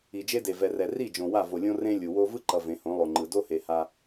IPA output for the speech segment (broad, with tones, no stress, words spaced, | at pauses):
i˨d͡ʒe˦de˨ vɛ˨rɛ˨ ri˦˨ d͡ʒõ˨wa˦˨ vo˨lʲõ˦ rẽ˦ lʲu˨wo˦ vɯ˦ǃʌ˨ vẽ˨˦hõ˨˦lˠo˨ŋ͡ǃɯ˨ do˦he˨ ha˦